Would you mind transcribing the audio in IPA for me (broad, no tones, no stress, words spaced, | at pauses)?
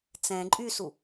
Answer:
t͡sɛ̃ ǃʼysu